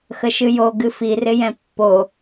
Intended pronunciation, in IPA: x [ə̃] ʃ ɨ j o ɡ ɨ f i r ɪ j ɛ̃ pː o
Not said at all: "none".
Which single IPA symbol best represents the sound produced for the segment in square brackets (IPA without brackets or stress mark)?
ə